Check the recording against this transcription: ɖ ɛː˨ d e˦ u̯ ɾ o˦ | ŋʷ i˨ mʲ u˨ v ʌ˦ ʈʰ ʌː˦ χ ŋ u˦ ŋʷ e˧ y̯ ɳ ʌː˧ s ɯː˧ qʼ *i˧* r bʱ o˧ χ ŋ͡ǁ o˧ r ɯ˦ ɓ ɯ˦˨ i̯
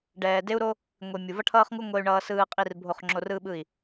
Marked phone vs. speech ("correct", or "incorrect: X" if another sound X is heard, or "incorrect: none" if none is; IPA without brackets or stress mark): correct